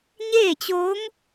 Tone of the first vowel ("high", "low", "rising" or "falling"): falling